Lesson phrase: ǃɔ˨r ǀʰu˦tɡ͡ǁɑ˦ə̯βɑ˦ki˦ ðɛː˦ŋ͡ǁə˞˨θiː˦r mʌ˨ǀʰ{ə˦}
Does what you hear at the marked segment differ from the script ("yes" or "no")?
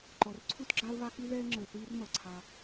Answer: yes